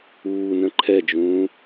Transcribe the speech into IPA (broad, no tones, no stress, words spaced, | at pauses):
uːnə̃ ǃʰɛd͡ʒũː